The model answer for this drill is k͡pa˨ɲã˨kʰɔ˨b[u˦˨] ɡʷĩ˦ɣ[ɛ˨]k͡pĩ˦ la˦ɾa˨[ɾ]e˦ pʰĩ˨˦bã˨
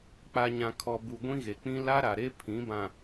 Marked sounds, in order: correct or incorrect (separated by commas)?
incorrect, incorrect, correct